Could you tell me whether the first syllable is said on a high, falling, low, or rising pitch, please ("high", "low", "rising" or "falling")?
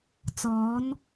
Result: rising